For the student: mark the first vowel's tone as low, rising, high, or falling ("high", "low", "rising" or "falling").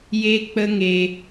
high